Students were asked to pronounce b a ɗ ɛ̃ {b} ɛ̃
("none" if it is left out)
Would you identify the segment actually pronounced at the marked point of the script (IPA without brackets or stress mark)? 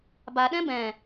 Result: b